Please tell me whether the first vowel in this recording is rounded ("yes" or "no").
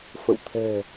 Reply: no